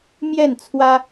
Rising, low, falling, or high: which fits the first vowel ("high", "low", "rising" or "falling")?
falling